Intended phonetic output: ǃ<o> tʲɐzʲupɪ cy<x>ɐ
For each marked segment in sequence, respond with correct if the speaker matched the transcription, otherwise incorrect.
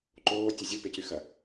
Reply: incorrect: oː, correct

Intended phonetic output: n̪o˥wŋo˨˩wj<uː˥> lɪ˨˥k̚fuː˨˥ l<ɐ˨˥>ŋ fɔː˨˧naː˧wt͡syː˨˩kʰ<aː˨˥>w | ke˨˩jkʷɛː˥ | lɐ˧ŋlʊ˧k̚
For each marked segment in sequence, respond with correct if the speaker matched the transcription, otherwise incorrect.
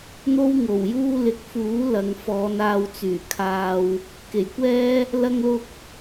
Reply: correct, incorrect: ɐ˨, incorrect: aː˧

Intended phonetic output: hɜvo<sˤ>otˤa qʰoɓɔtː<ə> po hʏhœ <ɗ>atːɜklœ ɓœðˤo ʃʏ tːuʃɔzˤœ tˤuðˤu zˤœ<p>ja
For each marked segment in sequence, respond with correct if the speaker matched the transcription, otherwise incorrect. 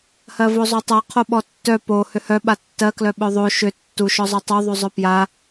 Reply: incorrect: zˤ, incorrect: œ, incorrect: ɓ, correct

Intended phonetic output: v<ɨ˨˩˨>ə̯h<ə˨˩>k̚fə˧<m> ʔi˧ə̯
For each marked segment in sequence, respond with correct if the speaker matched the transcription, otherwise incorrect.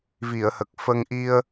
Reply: incorrect: i˨˩˨, correct, incorrect: ŋ

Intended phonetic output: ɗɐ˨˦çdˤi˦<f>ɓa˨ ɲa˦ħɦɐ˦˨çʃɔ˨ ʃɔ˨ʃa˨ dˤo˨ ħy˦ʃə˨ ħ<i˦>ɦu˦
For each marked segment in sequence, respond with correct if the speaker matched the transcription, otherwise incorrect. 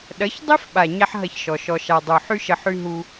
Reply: correct, incorrect: y˦

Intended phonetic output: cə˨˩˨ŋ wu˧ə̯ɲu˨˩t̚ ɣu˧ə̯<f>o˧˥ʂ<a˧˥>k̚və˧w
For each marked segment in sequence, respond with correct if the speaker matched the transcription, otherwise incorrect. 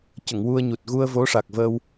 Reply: incorrect: v, incorrect: a˨˩

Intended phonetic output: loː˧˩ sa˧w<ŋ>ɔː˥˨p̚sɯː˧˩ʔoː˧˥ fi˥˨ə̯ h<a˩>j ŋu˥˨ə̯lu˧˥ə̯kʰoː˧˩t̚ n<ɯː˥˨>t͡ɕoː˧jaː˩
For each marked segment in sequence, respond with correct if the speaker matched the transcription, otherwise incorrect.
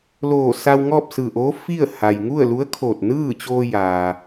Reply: correct, correct, correct

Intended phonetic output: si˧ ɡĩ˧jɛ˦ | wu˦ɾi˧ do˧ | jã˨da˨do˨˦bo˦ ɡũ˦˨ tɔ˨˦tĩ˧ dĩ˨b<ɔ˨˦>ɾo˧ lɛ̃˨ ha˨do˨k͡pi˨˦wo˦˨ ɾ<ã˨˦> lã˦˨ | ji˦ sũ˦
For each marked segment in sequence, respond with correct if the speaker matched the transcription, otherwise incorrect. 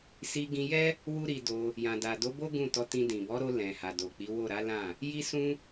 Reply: correct, incorrect: a˨˦

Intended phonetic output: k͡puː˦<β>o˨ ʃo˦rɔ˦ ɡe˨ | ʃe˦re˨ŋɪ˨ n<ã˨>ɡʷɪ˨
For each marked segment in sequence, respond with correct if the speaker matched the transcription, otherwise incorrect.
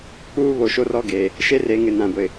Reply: correct, correct

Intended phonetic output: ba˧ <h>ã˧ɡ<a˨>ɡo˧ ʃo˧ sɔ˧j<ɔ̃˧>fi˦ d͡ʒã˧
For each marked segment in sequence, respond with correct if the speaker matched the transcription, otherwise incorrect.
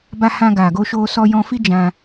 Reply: correct, correct, correct

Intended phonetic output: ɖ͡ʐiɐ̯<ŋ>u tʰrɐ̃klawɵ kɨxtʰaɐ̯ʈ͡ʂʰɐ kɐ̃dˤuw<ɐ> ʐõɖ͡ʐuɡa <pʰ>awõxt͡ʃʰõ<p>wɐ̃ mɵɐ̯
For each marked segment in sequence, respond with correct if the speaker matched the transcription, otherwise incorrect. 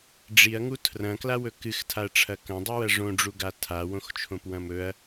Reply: correct, correct, incorrect: tʰ, correct

